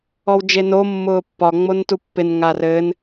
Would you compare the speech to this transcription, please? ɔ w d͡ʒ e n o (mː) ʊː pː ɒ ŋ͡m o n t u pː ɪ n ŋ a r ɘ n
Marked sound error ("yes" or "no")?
no